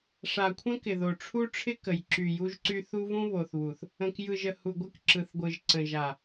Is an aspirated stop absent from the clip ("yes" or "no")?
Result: no